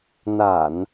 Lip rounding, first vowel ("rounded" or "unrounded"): unrounded